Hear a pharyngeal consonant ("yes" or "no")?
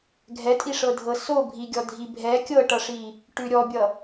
no